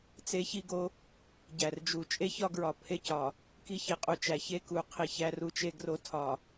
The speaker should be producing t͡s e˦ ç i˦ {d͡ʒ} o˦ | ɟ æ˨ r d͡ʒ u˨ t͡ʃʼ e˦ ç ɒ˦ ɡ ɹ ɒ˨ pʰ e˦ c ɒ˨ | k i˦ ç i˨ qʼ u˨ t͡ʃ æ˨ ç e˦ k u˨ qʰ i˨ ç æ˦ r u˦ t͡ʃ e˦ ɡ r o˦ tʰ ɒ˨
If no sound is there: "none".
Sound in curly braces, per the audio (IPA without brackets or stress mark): ɡ